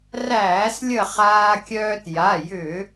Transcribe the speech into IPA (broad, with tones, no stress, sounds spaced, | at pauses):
r æː˧˩˧ s lʲ ə˧˩ χ aː˧ kʲ œː˧ t j a˩˧˩ j ʏː˧˩˧